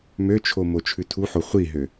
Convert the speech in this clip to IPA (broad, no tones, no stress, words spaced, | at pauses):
møt͡ʃʰo mot͡ʃʰʉtʰuħo χʷiɦø